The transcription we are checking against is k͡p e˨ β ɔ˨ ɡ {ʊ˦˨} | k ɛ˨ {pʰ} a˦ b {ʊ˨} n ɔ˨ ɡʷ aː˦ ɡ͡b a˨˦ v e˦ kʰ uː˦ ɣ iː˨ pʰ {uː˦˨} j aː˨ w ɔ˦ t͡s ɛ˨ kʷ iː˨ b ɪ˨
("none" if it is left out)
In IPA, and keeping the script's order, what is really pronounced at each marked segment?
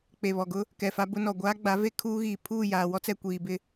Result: ʊ˦, f, ʊ˦, uː˦˨

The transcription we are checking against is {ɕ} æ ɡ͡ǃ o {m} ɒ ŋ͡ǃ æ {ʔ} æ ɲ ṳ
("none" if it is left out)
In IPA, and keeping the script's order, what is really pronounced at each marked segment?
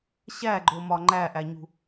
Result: ɕ, m, ʔ

